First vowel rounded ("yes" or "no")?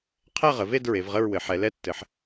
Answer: no